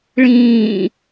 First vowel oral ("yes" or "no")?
no